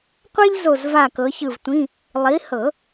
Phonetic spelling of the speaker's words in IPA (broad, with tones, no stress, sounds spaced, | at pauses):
qʷ ɛ˥ ʎ z o˦˨ z v a˦˨ k ɤ˨˦ ç ɯ˦˨ v tʷ ĩ˧˥˧ | lˠ i˨˦ h ɤ˨˩˦